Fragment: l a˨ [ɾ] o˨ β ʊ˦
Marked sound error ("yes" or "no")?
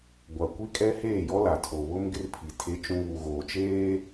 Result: yes